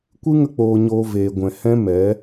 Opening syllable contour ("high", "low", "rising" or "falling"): high